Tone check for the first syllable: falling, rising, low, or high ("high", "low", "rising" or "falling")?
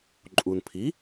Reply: low